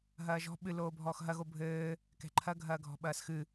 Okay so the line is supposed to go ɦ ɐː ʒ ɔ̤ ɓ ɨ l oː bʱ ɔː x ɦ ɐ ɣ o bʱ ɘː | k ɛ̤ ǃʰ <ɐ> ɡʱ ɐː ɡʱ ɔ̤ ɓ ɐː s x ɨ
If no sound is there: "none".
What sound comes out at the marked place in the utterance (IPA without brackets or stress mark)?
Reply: ɐ